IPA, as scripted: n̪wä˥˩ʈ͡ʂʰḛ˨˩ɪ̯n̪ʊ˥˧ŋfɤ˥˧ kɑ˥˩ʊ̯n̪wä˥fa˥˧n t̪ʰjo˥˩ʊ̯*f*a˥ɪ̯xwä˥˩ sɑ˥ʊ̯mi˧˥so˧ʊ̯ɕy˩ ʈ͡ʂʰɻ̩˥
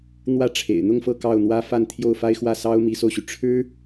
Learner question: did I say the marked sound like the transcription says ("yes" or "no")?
yes